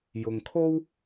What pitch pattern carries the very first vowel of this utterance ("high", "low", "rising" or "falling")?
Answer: low